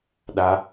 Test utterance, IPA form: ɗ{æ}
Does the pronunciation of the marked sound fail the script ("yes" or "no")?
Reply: yes